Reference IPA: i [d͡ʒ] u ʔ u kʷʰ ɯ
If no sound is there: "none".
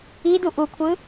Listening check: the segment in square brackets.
d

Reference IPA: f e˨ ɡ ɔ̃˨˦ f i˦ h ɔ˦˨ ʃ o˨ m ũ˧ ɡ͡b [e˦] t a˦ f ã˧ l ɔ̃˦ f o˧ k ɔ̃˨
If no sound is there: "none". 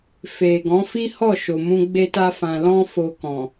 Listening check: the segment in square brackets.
e˦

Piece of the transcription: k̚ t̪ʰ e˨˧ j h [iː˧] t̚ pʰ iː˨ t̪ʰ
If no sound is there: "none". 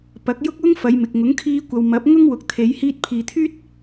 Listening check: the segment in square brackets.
iː˧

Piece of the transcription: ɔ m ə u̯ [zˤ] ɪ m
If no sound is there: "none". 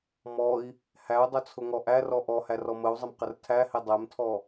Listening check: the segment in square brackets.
zˤ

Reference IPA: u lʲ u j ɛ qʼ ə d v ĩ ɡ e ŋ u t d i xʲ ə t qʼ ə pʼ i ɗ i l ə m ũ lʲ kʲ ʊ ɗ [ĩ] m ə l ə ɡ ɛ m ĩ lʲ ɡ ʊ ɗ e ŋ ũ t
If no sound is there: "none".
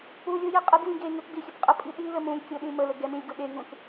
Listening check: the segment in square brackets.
ĩ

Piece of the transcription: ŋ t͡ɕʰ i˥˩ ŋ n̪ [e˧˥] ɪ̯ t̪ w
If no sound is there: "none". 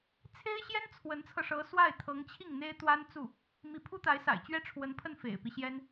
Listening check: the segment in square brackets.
e˥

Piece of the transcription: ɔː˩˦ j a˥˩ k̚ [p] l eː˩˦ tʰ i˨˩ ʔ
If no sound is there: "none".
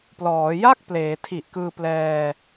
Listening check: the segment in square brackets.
p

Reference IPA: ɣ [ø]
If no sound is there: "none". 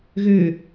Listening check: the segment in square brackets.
ø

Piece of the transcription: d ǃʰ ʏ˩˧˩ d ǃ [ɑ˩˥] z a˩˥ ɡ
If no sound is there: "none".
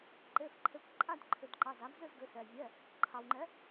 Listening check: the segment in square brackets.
ɑ˩˧˩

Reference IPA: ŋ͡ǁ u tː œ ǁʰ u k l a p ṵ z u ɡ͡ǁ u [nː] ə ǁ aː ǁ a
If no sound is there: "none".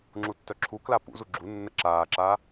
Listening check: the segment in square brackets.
nː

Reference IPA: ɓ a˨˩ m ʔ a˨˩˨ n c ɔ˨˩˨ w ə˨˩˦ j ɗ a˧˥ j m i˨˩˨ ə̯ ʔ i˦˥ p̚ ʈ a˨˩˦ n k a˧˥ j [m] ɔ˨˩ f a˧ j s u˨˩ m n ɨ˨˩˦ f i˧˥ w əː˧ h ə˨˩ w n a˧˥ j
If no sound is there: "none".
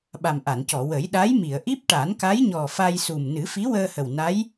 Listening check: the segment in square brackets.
ɲ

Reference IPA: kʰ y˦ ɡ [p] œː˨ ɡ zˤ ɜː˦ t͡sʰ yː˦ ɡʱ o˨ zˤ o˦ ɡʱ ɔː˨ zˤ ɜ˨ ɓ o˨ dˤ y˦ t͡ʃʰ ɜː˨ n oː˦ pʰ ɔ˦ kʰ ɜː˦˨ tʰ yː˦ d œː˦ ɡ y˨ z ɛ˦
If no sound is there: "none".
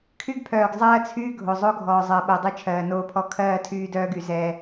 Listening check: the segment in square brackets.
pʰ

